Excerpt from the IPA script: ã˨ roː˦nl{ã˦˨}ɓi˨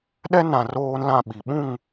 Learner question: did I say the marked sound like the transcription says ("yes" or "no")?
yes